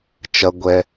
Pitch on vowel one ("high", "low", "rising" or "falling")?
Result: low